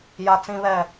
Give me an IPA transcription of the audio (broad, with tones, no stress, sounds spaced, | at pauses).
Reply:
j a˦ t͡s ĩ˦ β ɛ˦˨